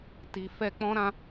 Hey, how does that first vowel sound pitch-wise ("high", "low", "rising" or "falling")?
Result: low